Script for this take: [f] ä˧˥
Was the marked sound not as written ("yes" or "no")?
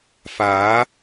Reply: no